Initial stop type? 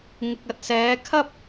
plain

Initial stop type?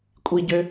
ejective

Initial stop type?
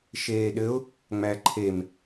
implosive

